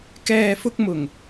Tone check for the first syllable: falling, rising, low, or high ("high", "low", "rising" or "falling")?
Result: low